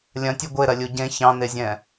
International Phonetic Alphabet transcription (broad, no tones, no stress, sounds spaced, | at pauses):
lʲ ɐ̃ tʲ ɛ ɡʷ e ɾ ɐ lʲ u ɟ ẽ ç ɑ̃ n e zʲ ɛ̃